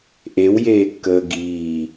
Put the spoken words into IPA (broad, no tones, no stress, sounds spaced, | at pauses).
ʔ e w j eː kː əː ɡ iː